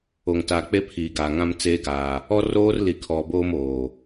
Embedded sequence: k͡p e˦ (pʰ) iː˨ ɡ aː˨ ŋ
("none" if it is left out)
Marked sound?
pʰ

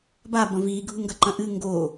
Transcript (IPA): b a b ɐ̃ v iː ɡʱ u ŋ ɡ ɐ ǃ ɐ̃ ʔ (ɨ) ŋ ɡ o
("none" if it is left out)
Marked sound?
ɨ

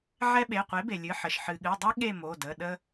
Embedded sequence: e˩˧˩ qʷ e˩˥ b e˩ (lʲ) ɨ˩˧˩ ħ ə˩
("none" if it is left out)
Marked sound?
lʲ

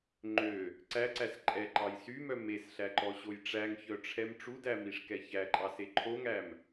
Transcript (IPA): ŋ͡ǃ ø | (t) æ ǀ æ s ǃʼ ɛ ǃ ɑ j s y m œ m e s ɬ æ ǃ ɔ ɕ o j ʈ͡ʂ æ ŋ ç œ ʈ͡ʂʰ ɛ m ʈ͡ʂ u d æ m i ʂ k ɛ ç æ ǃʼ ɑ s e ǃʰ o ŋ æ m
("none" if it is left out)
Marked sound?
ǀ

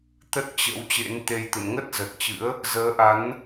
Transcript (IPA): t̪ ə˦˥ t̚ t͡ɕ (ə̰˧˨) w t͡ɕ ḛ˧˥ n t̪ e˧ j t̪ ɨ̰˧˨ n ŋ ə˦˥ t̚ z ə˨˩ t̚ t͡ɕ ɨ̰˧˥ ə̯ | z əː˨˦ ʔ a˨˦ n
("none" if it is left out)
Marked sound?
ə̰˧˥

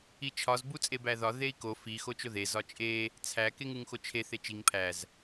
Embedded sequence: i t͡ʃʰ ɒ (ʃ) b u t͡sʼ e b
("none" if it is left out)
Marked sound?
z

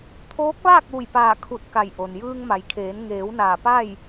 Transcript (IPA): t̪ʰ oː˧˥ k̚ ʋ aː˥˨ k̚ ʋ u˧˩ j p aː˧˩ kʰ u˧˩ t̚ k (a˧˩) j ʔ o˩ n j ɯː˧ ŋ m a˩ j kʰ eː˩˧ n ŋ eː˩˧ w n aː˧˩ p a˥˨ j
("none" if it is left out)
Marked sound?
a˧˩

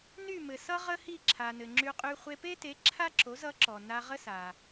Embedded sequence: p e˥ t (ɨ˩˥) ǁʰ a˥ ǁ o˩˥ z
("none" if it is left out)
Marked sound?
e˩˥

